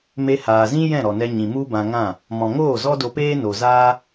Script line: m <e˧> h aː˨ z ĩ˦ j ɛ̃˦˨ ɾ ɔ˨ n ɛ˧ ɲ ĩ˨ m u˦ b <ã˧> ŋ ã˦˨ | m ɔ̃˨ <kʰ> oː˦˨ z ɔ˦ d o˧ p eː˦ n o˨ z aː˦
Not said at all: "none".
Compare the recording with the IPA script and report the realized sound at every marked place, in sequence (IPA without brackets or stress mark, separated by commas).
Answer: e˧, ã˧, ŋ